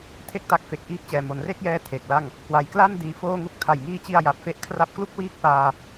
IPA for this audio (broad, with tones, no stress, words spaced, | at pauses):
tʰe˥˩k̚ta˦˥k̚ fe˨˩k̚ʔiː˦˥k̚t͡ɕɛː˨˩ mo˩˦nre˥˩k̚jɛː˦˥ tʰe˨˩k̚la˥˩ŋ | kwa˨˩jkla˥˩n diː˧foː˥˩ŋu˥˩k̚ tʰa˨˩jŋiː˧t͡ɕi˧a̯ ja˨˩p̚fe˦˥ʔ kʰra˥˩p̚ klu˥˩k̚wiː˦˥k̚paː˧